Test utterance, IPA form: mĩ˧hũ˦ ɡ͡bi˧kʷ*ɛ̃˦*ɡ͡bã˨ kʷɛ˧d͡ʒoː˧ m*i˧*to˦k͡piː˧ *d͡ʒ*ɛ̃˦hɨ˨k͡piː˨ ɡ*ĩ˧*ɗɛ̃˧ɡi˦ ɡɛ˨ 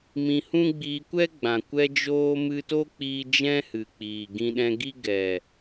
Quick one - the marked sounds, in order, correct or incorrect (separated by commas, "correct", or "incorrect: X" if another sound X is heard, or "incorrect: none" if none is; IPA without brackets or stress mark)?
incorrect: ɛ˦, incorrect: ɨ˧, correct, correct